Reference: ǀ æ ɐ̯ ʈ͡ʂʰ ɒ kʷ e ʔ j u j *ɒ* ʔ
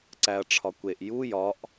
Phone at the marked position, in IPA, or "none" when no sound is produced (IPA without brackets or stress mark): ɒ